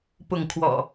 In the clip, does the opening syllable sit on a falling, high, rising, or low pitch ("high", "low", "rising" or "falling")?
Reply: falling